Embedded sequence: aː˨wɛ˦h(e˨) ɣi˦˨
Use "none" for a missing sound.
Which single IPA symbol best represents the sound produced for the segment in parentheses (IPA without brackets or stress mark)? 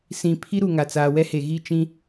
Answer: e˨